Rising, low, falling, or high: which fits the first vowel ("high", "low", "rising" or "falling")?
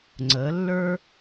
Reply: rising